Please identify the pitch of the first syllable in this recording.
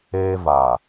high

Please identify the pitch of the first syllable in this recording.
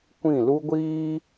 falling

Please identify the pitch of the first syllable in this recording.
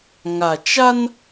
low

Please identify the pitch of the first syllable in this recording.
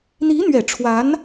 rising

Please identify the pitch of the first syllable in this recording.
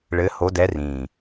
rising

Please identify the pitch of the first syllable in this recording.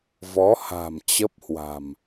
rising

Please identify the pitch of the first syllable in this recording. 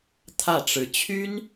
falling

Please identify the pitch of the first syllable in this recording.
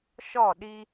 falling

